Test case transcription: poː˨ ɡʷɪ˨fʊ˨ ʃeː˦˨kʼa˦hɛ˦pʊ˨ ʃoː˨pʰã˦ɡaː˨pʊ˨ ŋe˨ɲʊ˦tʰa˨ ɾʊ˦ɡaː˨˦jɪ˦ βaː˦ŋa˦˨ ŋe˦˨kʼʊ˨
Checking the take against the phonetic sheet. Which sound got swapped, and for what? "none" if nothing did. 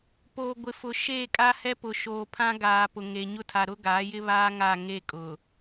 none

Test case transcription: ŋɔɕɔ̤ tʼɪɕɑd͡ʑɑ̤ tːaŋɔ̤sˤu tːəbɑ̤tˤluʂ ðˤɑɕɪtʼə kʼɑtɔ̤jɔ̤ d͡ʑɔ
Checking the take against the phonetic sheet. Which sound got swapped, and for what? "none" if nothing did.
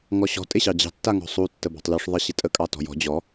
none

